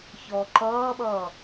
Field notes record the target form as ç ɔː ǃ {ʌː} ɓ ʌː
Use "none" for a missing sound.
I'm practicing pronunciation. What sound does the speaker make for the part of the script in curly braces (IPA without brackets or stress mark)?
ʌː